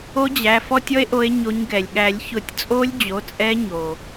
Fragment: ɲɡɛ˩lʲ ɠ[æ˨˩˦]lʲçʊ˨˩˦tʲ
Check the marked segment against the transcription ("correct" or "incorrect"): correct